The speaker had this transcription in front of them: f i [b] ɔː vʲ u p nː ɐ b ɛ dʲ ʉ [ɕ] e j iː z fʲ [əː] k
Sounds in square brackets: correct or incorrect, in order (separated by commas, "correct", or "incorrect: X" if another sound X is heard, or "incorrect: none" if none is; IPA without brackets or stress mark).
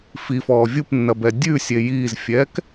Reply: incorrect: f, incorrect: sʲ, incorrect: ɛː